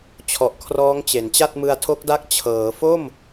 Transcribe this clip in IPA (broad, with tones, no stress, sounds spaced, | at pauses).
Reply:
t͡ɕʰ ɔ˨˩ ʔ kʰ r ɔː˦˥ ŋ t͡ɕ e˩˦ n t͡ɕ a˥˩ t̚ m ɯ˧ a̯ tʰ o˦˥ k̚ d a˦˥ k̚ t͡ɕʰ ɤː˩˦ f o˥˩ m